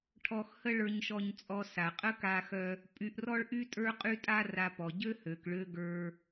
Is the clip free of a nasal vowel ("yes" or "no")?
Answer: yes